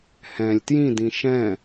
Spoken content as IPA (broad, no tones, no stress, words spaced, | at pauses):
hɛ̃lʲ tjĩdĩ ʃɛ̃